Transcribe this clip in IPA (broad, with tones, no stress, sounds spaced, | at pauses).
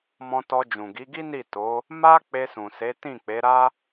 m ɔ̃˧ t ɔ˧ d͡ʒ ũ˨ ɡ i˨˦ ɡ i˦ n i˦˨ t o˨˦ | m a˦ k͡p e˧ s ũ˨ s e˨˦ t ĩ˦˨ k͡p e˨˦ ɾ a˦